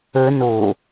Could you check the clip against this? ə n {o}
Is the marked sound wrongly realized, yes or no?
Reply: no